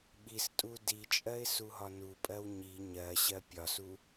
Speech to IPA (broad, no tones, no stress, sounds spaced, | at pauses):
ɓ i s tʼ u d i t͡ʃʼ ɜ ɪ̯ s u ɦ ɒ n u pʼ ɜ w ɲ i ɲ ɜ ɕ ɜ pʲ ɒ s u